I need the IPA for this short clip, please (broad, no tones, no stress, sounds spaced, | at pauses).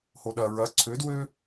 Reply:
h o ɗ ɐ ɹ ɐ ǀʰ ø d w ø